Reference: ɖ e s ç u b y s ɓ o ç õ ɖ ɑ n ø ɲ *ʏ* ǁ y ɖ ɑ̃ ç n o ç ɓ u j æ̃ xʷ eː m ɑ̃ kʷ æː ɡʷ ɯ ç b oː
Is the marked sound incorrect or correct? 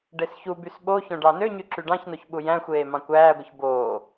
incorrect